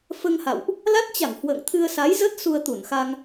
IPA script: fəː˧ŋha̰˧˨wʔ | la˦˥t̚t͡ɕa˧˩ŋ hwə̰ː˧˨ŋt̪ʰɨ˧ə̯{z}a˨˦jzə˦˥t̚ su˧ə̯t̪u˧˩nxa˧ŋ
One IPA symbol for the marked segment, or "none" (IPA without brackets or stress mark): s